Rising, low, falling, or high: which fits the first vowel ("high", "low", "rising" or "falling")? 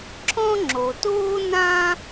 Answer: high